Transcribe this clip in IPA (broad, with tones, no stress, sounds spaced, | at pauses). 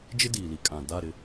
d͡ʒ ɪ˦ d iː˨ l i˨ kʼ ã˨ d a˦˨ ɾ ɪ˦